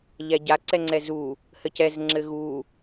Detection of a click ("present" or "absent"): present